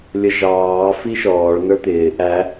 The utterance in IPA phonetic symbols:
lʲ ʌ ʒ ɑː f i ʃ ɔː ɭ n ə˞ t̪ ɪː ʔ æ

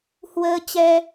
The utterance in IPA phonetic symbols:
h w əː˧ t͡ɕ ɛ˧

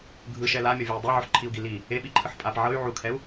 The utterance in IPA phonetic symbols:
ɡʱ ɯ ʃ ɛ l a mʲ ɔ vʲ ɤ i̯ dˤ e ʕ o ħ ǃʰ i u̯ ɡ i l i | e ɓ i ǃʰ ɯ ħ pʼ a p ʕ ɤ y̯ ʕ u kʰ ɛ u̯

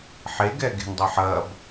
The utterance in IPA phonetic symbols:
ħ e ɡ ɛ ɡ e̤ n dˤ ɐ ħ ɐ b

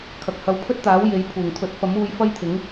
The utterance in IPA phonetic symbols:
kʰ ɐ˨ k̚ h ɐ˨˧ w pʰ ɵ˥ t̚ t̪ aː˨˥ w j e˨˥ j pʰ uː˨˩ ŋ t̪ʰ ɵ˨˥ t̚ f ɐ˨˥ m uː˧ j f ɐ˥ j t̪ʰ ɪ˨˥ ŋ

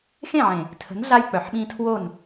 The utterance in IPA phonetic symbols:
x ẽ˦˨ ʕ ẽ˨ | tʰ ə̤˨˦ n ɮ a˧ j k͡p œ˨ ħ ɓ ĩ˧ tʰ w o˦˨ n

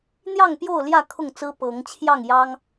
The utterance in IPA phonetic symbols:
n̪ j ɑ˥˨ ŋ p j o˥˨ ʊ̯ l j ä˥˨ kʰ ʊ˥˨ ŋ t͡s ɹ̩˦ p ɤ˨˦ ŋ t͡ɕʰ j ɑ˥˨ ŋ j ɑ˦ ŋ

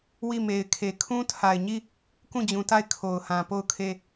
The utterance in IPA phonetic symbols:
w i˦˨ m e˨ ɪ̯ kʰ e˨ kʰ ũ˦ tʰ a˨ ɪ̯ ɲ i˦˨ | k ũ˦˨ d͡ʑ ũ˨ t a˦˨ ɪ̯ kʰ o˨ ʊ̯ h ã˨ p o˦˨ ʊ̯ kʰ e˦˨

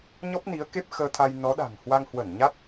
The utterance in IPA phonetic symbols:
ɲ ɔ˦˥ p̚ n i˨˦ ə̯ k e˦˥ p̚ x əː˧ t̪ʰ a˧ j n ɔ˨˦ ɗ a̤˨˩ ŋ h w a˧ ŋ h w ə˧˩ n ɲ a˦˥ t̚

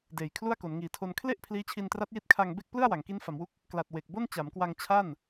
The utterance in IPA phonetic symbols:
d eː˨˩ j kʰ l u˥˩ a̯ k o˩˦ n ŋ iː˨˩ tʰ o˧ n kʰ l e˥˩ ʔ pʰ l iː˦˥ t͡ɕʰ i˧ n t r a˦˥ t̚ j i˦˥ t̚ kʰ a˧ ŋ b e˥˩ k̚ p l ɯ˥˩ a̯ w a˩˦ ŋ k i˦˥ n f a˩˦ m w u˦˥ k̚ | k l a˨˩ t̚ w e˨˩ k̚ b o˥˩ n t͡ɕ a˩˦ m k w a˧ ŋ t͡ɕʰ a˥˩ n

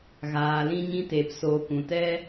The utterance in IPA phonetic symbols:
ɣ aː˨ l ĩ˧ ɲ ĩ˧ t eː˨ p s oː˨ k ũ˨ t ɛ˧

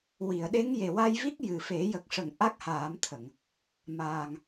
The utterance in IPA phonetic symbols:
w i˨˩˨ ə̯ ɗ e˧˥ ŋ j e˨˩ w a˧ j v i˦˥ k̚ j ɨ˨˩ f e˨˩˦ j ə˨˩ k̚ ʂ ə˨˩˨ ŋ ʔ a˦˥ k̚ h aː˨˩˦ m t̪ʰ ə˨˩˨ ŋ | m aː˨˩ ŋ

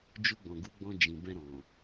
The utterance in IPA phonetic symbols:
d͡ʒ u˧ ɡ͡b ɔ̃˨ ɡ u˨˦ ɡ͡b ɔ̃˧ d͡ʒ ĩ˨ b ɛ̃˧ ɾ ɔ̃˨

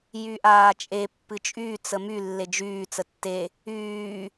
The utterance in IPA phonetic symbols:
j y ʔ aː t͡ʃʼ e pː ɨ t͡ʃʼ y t͡s ə m y lː e d͡ʒ yː t͡s ə tː e | yː

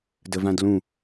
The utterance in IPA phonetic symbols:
d ə v ã d l ũ

